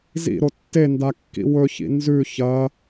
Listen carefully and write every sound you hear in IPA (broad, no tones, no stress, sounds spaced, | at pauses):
z ḭ ɾ o tː e n d a kː ḭ w ɵ ç ḭ n z ʉ ç ɐ